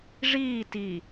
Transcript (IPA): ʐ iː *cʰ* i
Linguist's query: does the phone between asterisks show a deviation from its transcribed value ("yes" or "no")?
yes